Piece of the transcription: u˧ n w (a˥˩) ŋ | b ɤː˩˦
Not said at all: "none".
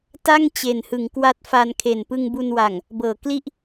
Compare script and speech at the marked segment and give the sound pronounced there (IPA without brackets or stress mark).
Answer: a˨˩